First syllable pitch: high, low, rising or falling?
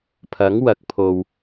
rising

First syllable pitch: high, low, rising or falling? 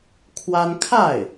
high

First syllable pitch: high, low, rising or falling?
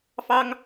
high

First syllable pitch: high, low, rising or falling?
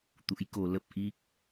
rising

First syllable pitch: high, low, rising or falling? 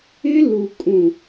high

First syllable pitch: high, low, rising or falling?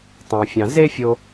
low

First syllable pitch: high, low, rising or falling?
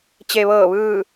low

